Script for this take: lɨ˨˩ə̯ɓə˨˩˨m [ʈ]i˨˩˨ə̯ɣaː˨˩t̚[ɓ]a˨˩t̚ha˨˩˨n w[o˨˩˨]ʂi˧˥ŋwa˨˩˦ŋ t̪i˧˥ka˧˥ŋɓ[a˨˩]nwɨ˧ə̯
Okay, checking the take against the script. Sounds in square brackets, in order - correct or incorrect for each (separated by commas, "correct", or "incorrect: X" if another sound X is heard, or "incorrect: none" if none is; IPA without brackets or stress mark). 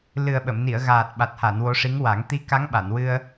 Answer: incorrect: n, correct, incorrect: o˧˥, incorrect: a˨˩˨